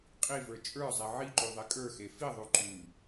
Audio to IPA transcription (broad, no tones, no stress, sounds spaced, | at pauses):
qʼ i v ə˞ t͡ʃʼ ə˞ zˤ e ʕ i ǃ ʉ ðˤ e kʼ ə˞ x e f i ðˤ ʉ ǃ ʉ